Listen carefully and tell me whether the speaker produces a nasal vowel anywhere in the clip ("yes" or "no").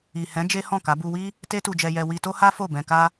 yes